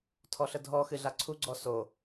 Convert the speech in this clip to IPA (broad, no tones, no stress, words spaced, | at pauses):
tʰɔɬədʱɔ xɨɮaǀʰu ɡ͡ǀɔso